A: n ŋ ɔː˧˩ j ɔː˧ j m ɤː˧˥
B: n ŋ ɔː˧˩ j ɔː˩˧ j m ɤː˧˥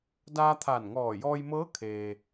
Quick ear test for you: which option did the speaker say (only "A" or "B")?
A